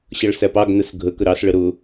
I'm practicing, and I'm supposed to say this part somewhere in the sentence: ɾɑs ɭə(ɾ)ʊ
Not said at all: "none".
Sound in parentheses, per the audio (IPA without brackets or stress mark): ɾ